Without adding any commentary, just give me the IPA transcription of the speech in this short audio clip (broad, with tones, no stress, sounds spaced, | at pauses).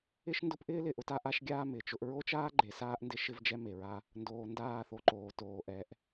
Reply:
ɪ˦ ʃ n d ʊ˦ p ʔ ɪː˦ l ɪ˨ ʔ ʊ˦ t a˦ ʔ a˦ ʃ ɡʲ aː˦ m ɪː˨ t͡ʃ ʊ˦ ʔ ɹ o˦ t͡ʃ aː˦ ɡ͡ǃ e˨ s aː˦ ʔ n d ɪ˦ ʃ ɪ˦ v d͡ʒ ɛ˦ m e˨ ɹ a˦ | n d oː˨ n d aː˦˨ θ o˨ ǃ oː˨ t oː˨ ʔ ɛ˨˦ ʔ